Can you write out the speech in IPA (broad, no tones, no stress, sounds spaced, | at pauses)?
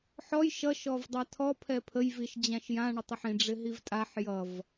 ħ ɔ j ʃ ʌ ʃ ɔ v dˤ a tʰ ɔ pʰ ɛ pʰ ə j v i ʃ d͡ʑ ã ʃ j ã ɳ ə tˤ ə ħ ĩ ɖ͡ʐ ɪ ɦ i v tʼ a ħ j ʌ v